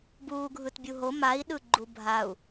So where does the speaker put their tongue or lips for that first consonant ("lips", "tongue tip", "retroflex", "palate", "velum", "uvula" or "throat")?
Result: lips